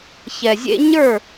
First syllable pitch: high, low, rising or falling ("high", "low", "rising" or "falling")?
low